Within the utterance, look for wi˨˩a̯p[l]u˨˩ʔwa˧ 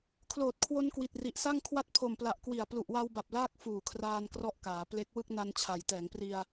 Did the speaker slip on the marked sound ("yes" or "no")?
no